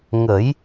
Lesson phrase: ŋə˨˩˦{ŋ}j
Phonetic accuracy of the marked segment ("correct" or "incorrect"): incorrect